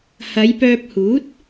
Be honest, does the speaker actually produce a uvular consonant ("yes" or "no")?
no